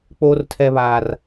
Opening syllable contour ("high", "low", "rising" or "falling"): high